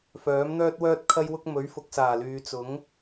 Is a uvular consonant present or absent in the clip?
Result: absent